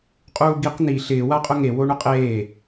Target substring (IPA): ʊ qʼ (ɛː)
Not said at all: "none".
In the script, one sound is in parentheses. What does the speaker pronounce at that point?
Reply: eː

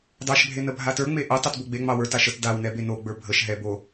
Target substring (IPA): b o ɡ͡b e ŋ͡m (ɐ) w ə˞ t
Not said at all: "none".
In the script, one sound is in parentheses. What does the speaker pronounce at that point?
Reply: ɑ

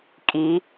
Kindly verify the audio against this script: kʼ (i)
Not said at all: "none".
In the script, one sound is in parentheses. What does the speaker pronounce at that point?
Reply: i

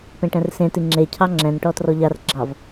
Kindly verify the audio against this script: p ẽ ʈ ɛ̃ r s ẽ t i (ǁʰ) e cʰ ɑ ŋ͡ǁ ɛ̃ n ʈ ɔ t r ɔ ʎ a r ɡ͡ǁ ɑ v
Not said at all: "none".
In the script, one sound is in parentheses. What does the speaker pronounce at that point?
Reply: ŋ͡ǁ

